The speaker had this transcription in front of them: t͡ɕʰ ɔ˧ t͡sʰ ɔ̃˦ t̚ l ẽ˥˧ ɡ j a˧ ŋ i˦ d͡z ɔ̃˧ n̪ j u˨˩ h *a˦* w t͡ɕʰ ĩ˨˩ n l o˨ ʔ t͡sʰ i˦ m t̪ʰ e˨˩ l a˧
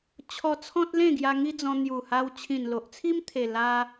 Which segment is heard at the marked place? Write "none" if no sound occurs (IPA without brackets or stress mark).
a˧